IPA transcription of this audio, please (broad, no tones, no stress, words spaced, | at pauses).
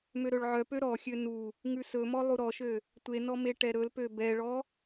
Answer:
møɾɵɭʕœpø ɾɔxʲø nu | ŋʉsɵmɔ lˠuɾɔʃø | tʷenɔ meʈɛɾɵlpø bɛɭɔ